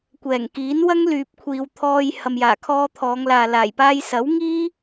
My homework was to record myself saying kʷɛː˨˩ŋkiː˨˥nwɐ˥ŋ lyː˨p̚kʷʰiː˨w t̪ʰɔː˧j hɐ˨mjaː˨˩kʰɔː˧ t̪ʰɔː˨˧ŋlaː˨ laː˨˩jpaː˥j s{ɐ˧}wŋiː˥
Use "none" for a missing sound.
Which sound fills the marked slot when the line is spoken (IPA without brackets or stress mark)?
ɐ˨˥